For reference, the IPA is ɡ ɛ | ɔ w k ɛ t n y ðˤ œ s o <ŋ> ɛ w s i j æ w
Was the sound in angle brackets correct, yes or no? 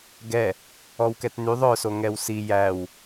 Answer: yes